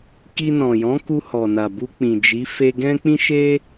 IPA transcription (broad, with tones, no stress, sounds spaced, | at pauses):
k i˧ n ɔ̃˨ j ɔ̃˨˦ k u˧ h ɔ˨ n a˨ b u˧ k͡p ĩ˨ d͡ʒ i˨˦ f e˧ ɡ ɛ̃˦ k͡p ĩ˦ ʃ e˦